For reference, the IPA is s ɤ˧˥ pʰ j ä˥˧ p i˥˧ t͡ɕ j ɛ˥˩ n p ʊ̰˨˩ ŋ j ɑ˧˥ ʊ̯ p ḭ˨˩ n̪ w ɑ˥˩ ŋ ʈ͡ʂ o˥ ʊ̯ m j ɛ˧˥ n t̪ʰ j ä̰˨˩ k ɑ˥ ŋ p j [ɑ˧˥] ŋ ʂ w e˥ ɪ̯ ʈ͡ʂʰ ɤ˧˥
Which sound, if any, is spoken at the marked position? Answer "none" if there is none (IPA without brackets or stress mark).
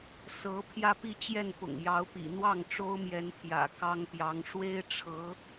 ɑ˧˥